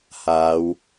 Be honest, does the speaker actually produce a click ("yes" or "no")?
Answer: no